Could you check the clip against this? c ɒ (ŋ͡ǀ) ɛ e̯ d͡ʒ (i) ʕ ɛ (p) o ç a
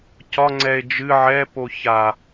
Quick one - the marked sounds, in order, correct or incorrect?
correct, incorrect: ɨ, correct

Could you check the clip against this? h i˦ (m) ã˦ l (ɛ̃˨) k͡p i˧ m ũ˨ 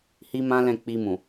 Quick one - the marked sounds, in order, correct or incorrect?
correct, incorrect: ɛ̃˦˨

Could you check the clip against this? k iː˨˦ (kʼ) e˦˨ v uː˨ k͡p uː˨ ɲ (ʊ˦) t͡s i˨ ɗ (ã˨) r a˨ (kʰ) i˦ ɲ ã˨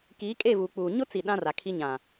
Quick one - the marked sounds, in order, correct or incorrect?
correct, correct, incorrect: ã˦, correct

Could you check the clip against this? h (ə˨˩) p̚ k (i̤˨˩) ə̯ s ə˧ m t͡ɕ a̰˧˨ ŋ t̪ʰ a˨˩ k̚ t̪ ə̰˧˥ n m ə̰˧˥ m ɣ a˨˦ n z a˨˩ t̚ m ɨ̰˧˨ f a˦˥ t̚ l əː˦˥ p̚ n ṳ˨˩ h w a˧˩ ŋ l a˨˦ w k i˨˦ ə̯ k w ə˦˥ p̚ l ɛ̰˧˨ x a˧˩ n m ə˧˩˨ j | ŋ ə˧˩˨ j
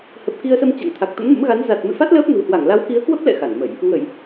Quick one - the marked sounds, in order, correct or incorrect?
correct, incorrect: i˧

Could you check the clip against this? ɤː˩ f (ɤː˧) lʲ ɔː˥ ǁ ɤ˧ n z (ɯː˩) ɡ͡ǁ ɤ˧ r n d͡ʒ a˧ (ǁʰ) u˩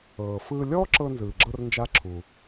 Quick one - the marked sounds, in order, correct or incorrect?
incorrect: ɯː˧, correct, correct

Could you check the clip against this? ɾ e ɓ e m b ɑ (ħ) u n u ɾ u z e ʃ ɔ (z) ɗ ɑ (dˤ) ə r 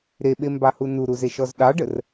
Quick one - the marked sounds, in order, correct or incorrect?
incorrect: h, correct, incorrect: ɖ

